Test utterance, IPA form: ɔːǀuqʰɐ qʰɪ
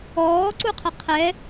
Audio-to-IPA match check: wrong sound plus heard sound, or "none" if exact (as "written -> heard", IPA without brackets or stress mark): ɪ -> ɛ